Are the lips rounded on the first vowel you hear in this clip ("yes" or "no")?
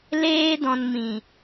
no